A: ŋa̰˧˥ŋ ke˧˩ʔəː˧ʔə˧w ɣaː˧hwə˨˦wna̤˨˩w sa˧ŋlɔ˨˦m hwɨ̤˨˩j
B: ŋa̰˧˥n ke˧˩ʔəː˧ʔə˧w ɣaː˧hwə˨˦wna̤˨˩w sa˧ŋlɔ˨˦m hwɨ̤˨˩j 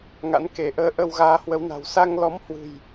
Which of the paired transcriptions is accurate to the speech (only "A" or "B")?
B